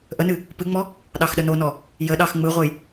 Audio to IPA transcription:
ʔ ə n ɨ | p ɨ ŋ͡m ɔ | ɗ ɑ x ɗ ə n o n ɔ | j ə ɗ ɑ x ŋ͡m ɯ ʁʷ ə j

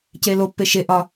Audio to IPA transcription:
c e l o pː e ʃ e ʔ ɒ

